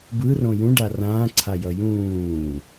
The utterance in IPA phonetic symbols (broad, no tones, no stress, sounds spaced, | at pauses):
b ɯ r õ j ũ ɖ a r ãː ǀʰ a j ʌ j ũː